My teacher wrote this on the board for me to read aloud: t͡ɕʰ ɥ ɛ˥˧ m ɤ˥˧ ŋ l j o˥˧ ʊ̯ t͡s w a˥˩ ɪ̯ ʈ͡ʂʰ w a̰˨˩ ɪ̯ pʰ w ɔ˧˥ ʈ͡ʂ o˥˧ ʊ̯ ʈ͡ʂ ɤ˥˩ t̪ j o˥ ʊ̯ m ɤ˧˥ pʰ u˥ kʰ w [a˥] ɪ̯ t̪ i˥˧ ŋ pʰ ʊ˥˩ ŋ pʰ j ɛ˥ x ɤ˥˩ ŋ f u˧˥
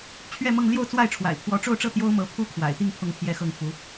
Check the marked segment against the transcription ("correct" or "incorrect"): incorrect